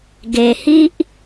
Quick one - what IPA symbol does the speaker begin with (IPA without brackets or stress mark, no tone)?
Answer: ɡ